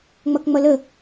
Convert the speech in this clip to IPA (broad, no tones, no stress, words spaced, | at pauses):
ŋ͡mʌkŋ͡mʌlə